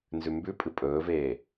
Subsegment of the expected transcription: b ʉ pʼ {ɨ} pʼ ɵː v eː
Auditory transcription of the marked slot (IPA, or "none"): ɨ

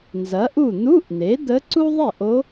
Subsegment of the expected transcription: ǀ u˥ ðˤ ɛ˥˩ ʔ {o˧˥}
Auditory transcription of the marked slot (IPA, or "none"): o˧˥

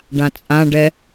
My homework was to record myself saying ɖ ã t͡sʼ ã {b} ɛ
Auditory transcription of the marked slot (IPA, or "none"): ɖ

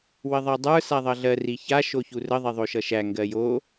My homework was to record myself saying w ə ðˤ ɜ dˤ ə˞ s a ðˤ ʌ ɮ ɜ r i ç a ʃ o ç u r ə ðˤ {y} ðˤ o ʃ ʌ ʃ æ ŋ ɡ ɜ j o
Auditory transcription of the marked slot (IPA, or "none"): e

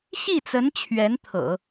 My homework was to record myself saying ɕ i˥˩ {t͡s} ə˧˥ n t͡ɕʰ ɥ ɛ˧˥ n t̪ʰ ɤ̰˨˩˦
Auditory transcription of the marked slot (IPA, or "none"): t͡s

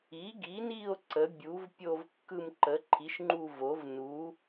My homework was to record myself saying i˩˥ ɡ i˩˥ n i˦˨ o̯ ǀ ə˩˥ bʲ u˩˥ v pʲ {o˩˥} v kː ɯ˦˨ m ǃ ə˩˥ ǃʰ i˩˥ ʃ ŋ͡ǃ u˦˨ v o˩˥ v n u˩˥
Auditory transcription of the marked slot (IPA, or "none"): o˦˨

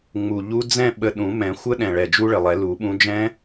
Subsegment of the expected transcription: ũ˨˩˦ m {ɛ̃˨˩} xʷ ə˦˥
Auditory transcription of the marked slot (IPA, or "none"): ɛ̃˨˩˦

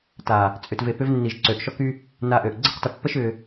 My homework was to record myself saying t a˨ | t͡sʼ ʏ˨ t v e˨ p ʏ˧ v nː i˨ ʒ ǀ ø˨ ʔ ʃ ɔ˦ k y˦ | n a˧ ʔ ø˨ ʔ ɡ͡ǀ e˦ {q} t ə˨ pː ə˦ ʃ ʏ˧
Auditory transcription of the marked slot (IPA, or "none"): q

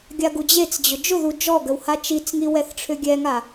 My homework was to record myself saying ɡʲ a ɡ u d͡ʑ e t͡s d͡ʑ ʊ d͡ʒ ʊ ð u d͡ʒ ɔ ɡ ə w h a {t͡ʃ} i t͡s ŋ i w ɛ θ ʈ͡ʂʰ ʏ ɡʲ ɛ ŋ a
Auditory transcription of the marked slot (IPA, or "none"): t͡ʃ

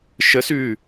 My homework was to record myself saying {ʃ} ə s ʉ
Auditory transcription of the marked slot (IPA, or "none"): ʃ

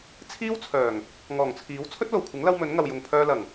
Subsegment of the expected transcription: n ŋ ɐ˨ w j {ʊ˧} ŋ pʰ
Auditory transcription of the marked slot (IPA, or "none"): ʊ˨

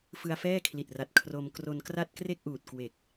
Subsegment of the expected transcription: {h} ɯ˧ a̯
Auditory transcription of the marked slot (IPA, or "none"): f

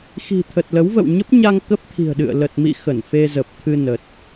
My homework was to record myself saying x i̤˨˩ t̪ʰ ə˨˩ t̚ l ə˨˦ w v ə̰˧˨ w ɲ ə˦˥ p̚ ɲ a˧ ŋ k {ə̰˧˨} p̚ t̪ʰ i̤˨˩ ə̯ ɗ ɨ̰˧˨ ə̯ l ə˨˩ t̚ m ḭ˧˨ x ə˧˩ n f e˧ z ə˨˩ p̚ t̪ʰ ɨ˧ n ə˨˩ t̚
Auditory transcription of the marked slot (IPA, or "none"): ə˦˥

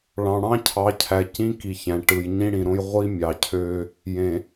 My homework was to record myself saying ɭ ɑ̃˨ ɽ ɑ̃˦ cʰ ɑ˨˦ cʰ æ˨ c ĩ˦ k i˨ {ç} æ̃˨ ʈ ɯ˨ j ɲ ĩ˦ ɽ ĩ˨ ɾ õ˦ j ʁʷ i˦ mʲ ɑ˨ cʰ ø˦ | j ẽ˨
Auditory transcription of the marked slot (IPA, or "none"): ç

